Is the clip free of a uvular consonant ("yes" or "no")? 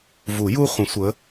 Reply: no